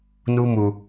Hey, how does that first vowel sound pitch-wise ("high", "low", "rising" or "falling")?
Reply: high